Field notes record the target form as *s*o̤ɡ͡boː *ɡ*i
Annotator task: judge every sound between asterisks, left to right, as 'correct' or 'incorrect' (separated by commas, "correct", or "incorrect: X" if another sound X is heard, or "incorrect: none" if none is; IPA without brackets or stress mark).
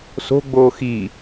correct, incorrect: x